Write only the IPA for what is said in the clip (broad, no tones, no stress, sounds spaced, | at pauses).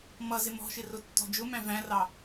m ʌ z ɪ m ɔ̤ ʃ ɪ r ʊ tː ɔ̤ d͡ʒ ʊ m æ̃ v æ̃ r ɑ